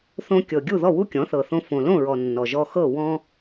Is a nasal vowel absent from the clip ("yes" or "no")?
no